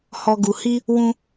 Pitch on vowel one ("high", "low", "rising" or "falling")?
low